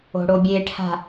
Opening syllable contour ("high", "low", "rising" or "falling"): low